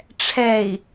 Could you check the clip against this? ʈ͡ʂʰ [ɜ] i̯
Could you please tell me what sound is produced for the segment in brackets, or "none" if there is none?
ɛ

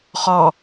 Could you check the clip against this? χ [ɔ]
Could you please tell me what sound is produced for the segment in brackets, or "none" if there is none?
ɔ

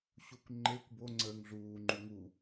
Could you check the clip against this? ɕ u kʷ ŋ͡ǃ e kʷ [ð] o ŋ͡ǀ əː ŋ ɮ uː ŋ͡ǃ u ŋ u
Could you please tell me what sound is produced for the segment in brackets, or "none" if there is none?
b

